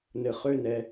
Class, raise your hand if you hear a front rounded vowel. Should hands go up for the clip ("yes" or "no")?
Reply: yes